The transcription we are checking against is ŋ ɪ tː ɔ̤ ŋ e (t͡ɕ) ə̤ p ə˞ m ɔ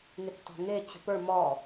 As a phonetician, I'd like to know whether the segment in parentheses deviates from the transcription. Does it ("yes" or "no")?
no